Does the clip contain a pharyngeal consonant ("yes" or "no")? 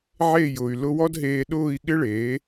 yes